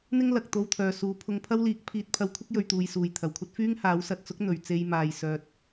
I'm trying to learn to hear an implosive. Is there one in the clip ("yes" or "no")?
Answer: no